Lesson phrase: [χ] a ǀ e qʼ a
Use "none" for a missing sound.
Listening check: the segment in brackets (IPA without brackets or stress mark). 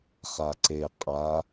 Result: χ